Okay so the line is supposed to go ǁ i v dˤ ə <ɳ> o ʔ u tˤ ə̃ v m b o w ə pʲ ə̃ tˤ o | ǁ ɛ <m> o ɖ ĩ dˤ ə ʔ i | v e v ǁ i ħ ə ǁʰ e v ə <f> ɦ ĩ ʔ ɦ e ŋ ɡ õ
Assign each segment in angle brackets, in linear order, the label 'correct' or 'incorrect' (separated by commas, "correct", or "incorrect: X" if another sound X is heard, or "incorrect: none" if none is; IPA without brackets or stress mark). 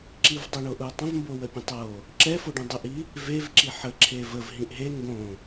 correct, incorrect: f, incorrect: v